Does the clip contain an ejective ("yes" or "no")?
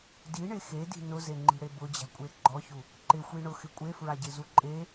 yes